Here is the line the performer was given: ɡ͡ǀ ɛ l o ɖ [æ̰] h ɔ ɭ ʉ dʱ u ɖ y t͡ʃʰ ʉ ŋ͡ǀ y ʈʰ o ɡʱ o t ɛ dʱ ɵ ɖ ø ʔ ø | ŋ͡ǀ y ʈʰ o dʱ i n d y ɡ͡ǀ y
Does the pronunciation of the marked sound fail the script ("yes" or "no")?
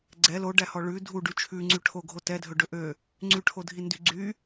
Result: yes